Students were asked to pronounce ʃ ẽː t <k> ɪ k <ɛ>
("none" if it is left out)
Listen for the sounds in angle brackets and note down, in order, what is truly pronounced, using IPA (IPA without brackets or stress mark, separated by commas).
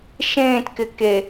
k, e